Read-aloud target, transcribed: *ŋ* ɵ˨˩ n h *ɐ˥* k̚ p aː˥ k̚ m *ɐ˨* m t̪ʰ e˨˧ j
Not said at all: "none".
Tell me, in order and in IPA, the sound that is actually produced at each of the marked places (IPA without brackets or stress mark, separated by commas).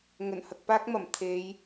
ŋ, ɐ˨, ɐ˨˩